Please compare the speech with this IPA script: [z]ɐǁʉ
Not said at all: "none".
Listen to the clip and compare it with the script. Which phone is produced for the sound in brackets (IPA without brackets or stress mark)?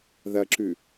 ð